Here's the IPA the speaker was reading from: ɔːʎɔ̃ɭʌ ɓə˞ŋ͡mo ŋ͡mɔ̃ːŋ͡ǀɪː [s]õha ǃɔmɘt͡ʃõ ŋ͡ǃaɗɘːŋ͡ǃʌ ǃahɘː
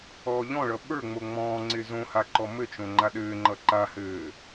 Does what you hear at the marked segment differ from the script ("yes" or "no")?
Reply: yes